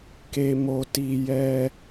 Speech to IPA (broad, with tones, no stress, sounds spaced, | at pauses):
k e˧ m o˧ t i˧ j ɛ˦